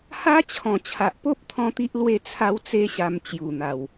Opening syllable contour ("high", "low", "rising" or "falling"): high